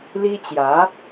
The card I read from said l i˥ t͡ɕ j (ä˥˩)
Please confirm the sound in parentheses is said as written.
no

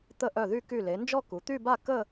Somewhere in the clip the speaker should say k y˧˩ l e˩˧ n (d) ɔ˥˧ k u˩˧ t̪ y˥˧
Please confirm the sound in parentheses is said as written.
no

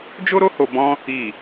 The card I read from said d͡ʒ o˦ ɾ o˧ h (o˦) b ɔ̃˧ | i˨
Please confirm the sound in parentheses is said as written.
no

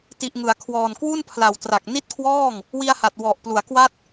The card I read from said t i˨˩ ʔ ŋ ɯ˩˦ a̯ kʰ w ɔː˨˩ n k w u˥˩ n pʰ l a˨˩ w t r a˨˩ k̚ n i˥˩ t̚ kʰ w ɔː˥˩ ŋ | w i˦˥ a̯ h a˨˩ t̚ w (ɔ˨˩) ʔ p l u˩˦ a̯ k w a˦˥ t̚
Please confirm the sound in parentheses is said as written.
yes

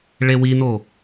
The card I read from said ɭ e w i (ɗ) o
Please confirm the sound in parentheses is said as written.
no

